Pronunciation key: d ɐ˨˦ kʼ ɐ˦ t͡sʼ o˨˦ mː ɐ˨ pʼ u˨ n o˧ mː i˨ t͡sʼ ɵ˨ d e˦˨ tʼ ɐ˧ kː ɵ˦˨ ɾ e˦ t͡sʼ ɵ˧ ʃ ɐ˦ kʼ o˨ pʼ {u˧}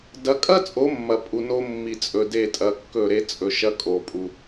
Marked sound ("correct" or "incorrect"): correct